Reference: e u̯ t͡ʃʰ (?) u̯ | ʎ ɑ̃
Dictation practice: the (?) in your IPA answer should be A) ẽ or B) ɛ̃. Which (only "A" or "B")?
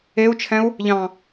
B